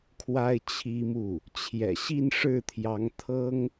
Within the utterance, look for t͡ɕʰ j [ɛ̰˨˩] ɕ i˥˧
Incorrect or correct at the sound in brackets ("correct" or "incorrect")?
correct